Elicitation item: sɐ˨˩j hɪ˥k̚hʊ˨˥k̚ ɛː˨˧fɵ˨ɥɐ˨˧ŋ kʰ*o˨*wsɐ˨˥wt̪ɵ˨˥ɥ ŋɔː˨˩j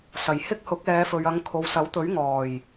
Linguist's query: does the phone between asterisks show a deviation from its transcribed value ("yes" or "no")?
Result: no